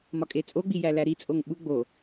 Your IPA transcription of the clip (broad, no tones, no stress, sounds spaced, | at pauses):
m ɒ kʼ e t͡sʼ o ɡ͡b i j æ l æ ɾ i t͡sʼ o ŋ ɓ u ɡ͡b o